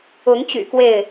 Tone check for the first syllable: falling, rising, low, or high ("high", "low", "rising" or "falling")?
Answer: rising